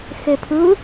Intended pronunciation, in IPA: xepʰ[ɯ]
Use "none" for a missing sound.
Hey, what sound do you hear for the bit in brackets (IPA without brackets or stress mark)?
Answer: ɯ